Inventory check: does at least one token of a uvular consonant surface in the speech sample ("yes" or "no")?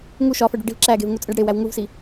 no